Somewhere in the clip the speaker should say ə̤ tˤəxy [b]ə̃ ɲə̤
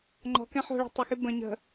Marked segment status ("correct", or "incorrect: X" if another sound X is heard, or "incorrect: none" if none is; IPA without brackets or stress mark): correct